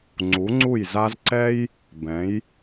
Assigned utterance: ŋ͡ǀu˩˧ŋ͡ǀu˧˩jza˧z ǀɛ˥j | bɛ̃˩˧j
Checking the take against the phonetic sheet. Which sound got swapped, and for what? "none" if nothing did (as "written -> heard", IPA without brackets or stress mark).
none